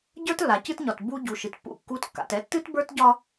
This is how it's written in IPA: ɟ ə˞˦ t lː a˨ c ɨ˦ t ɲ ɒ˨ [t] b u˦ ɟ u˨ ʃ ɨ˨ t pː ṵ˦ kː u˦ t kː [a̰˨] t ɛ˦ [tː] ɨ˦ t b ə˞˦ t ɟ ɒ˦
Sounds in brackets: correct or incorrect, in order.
correct, correct, correct

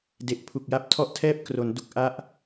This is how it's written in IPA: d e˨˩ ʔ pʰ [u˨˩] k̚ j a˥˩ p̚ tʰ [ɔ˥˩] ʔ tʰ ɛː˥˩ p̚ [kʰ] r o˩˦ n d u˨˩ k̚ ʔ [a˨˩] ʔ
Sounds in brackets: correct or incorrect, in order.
correct, correct, incorrect, incorrect

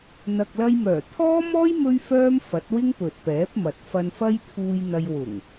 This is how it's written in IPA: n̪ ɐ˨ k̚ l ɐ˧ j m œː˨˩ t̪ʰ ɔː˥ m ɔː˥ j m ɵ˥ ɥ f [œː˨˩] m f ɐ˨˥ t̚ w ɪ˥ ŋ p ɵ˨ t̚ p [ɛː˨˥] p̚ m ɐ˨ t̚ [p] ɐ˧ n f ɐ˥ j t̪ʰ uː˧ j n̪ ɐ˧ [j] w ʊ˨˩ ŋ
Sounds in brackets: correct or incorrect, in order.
incorrect, correct, incorrect, correct

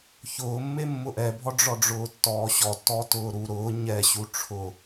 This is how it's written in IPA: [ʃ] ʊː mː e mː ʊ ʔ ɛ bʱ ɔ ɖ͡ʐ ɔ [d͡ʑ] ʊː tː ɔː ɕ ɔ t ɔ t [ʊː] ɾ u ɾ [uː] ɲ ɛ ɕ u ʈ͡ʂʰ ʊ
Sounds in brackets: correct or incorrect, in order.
incorrect, incorrect, correct, incorrect

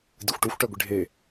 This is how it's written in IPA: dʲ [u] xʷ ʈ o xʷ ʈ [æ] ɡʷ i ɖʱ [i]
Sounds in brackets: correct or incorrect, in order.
correct, correct, incorrect

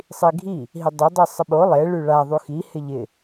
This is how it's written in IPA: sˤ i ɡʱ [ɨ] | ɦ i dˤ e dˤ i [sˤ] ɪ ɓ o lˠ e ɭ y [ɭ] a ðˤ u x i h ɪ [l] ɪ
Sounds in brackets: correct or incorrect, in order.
incorrect, correct, correct, incorrect

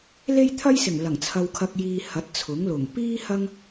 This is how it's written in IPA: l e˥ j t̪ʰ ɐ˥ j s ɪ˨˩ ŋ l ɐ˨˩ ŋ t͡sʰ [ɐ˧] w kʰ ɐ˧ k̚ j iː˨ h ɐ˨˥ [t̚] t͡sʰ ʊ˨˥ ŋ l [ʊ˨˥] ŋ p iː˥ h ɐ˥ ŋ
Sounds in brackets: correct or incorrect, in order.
correct, correct, incorrect

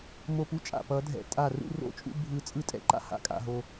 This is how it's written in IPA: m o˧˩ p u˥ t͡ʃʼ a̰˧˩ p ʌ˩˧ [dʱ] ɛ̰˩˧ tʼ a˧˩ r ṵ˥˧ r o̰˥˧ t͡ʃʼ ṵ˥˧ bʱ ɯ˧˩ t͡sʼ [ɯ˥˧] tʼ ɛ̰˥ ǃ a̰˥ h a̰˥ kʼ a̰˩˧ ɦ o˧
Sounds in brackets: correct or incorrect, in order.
correct, correct

